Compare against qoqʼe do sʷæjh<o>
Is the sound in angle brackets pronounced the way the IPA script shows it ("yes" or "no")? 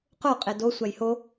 yes